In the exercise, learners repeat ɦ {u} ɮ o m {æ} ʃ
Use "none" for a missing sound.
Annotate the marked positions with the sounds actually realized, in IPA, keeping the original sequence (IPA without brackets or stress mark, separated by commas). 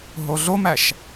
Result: o, æ